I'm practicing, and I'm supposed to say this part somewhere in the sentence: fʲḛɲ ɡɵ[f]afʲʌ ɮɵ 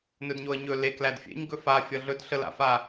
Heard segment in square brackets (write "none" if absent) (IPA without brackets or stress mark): f